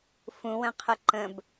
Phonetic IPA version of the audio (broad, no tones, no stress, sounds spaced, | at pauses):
f ũ w ə̃ qʰ ə ǃ ə̃ b